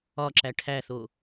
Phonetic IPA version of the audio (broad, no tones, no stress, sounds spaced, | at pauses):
ɒ ǁ æ ʈʰ æ θ o